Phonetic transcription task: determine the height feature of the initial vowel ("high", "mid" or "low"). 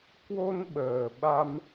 mid